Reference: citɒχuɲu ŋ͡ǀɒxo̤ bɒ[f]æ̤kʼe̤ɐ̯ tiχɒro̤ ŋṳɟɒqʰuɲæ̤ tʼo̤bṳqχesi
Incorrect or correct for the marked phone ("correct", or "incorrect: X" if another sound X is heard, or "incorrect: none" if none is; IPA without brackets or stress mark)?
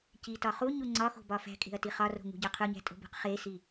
correct